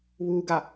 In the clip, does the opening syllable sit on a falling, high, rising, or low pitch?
low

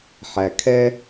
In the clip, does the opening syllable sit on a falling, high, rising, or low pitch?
low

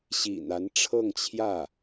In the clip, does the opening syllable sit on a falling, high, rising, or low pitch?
low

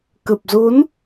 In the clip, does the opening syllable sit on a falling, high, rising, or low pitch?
low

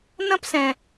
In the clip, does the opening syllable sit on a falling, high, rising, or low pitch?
high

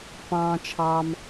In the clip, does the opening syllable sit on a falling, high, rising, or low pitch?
low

